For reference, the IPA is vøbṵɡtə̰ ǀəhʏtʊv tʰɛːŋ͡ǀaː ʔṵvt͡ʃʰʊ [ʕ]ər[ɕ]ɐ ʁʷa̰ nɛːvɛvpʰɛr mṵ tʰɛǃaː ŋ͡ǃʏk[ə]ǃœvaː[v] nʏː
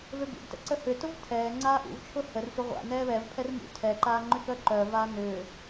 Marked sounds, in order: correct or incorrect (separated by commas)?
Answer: incorrect, incorrect, incorrect, incorrect